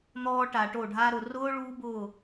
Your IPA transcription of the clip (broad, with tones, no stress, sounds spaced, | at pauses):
n̪ ɔː˧ ʈ a˨ ʈ o˦˨ ɖʱ a˦ ɾ ʊ˨ r ʊː˦ ɭ uː˦ b ʊː˦˨